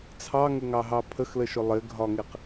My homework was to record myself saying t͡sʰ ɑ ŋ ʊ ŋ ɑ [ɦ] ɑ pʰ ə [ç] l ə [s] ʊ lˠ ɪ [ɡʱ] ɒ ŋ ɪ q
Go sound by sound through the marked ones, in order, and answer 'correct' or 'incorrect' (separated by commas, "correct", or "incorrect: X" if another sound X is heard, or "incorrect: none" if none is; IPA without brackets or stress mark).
correct, incorrect: x, incorrect: ʃ, correct